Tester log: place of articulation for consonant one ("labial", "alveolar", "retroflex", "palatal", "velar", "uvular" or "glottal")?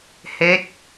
glottal